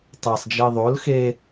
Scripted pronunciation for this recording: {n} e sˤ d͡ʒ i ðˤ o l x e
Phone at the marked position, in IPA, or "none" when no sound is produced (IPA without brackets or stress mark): tˤ